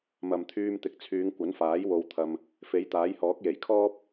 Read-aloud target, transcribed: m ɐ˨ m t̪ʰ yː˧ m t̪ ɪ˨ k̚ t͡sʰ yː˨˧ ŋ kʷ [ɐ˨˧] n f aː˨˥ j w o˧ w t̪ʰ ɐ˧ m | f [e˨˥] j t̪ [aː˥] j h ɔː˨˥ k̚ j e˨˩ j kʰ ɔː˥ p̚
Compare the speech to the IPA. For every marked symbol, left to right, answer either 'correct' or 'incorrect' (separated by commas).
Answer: incorrect, correct, incorrect